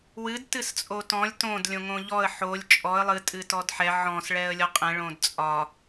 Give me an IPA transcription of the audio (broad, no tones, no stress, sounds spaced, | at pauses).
w ɨ d t ɨ s t͡sʼ o t ɔ̃ lʲ t õ d lʲ õ ŋ õ ʎ ɔ ə̯ ħ o lʲ t͡ʃʼ ɔ ə̯ lˠ ɨ tʼ ɨ t ɔ d ħ ɛ ʕ ɔ̃ s ɭ ɛ ə̯ lʲ ɔ qʼ ɛ̃ ɭ õ d t͡sʼ ɒ